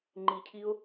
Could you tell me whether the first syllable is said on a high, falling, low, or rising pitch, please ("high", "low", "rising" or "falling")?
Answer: low